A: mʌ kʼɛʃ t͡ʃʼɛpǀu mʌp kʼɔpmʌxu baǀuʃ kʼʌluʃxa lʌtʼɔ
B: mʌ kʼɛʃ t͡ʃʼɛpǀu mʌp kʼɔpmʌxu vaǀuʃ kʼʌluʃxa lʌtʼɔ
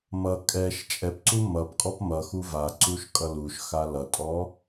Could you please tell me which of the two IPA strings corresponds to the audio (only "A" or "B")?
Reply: B